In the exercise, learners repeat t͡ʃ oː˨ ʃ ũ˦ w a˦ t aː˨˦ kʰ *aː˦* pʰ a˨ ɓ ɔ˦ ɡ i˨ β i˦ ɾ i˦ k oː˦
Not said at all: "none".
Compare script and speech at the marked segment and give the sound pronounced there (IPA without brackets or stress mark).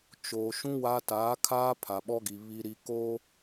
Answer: aː˦